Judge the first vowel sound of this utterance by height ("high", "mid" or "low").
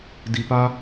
high